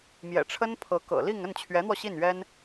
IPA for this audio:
mjɛ̰˨˩ʈ͡ʂʰə˥n pʰɤ˧˥kɤ̰˨˩li˥˧ŋ ə˥˩nt͡ɕʰɥɛ˧˥n̪wɔ˧ ɕi˥˩nɥɛ˥n

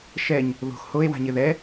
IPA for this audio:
ʃɛɲ | ðo̤x hoe̯wa̤ɲɪ ðɛ

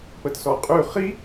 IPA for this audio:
pətsɔqʼʉ χi

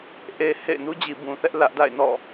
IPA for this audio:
ʔe˨ hḛ˦˨ɪ̯ nu˦d͡ʑi˨bũ˨θɛ˦ʔ lä˦ʔda̰˦˨ɪ̯ nɔ̰˦˨

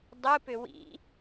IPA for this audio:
dˤɯpʏ wḭ

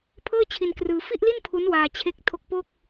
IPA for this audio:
pʰɤː˥˩t͡ɕʰi˧nkrɯː˧ fi˥˩ʔli˥˩n pʰu˦˥nwaː˧ t͡ɕʰe˦˥k̚tʰo˦˥k̚po˥˩k̚

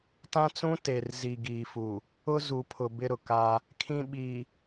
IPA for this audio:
tã˦t͡sũ˦ te˨rzi˨ ɡiː˨fu˨ | ʊ˦ zu˨pʰʊ˨ bɪ˦ɾʊ˨ka˦ | kʰĩ˦ɓi˨

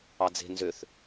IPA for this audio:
ɑd͡ze̤ nzøθ

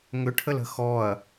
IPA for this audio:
ŋʏʈʰələ̤ xɔɐ̯

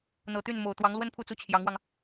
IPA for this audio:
n̪ɤ˨˩t̪y˥˩nmo˨˩ʊ̯ t̪wɑ˧˥ŋlwə˥npʰu˥˩t͡su˥ t͡ɕʰjɑ˧˥ŋwɑ˧ŋ

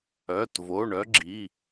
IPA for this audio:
œ˩˧˩tvo˩˧˩ɳœ˦ɡ͡ǁi˩˧˩

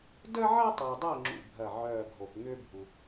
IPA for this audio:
də˥ʕɐ˥tˤœ˨dˤəː˦˨ ŋ͡ǁṵ˦˨bʱɐ˦˨ʕœː˦˨ɡʱo˨p ŋʏː˥bʱu˨

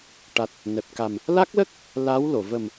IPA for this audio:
ʈa˨˩t̚ | nɛ˨˩p̚ka˨˩m | la˦˥k̚lə˦˥k̚ | la˧˥wlo˨˩˨ və˨˩m

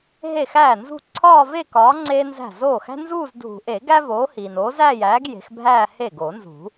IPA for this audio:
ɦe˥˩xæː˥˩nzṳ˥˧ ǀʰɒː˥˧ve˥˧kɒː˨˥ ŋ͡ǀeː˥nzæ̤˥˩ zoː˥˩xæ̤˥ nzuː˥˧z dʱṳ˨˩˦ʔe˨˩˦ ɡæ˥voː˨˥ hiː˨n oː˨˥zæː˥˧jæː˨˥ɡ je̤˨˥xbʱæː˥˧ he˥˩ ɡoː˨˩˦nzṳ˨˩˦

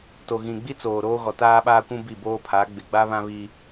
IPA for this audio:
to˨ɣĩ˨ɡ͡bi˦t͡soː˨ ɾoː˦ɣɔ˨taː˦ɓaː˦ kʷũ˦bi˦˨ boː˦pʰa˨˦ɡ͡bɪ˨ ɡ͡ba˦βã˦βiː˦

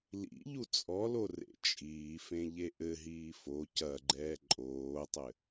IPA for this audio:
lḭʎu t͡sʼɔlo rḛt͡ʃʼiːfẽ ʎeʔɘɦiː fo cɐɡ͡ǃɛː ǃʼoːtˤɘ

